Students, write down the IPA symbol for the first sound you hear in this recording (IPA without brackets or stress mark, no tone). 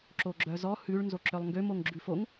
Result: ǁ